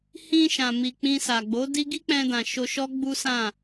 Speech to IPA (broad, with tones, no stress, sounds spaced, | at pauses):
h ĩ˧ ʃ ã˨ m i˨ k͡p ĩ˧ s a˨ ɡ͡b o˨˦ d i˦ ɡ i˦ k͡p ɛ̃˧ d ã˨ ʃ o˧ ʃ ɔ˦ ɡ͡b u˦ s ã˦˨